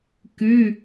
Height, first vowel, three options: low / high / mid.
high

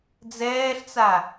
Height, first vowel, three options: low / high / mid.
mid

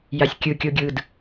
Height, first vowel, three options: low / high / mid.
low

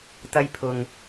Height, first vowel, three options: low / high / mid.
low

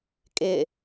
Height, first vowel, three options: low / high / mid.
high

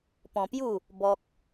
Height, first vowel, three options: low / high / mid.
mid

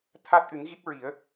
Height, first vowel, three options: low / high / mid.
low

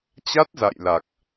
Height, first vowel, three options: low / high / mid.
low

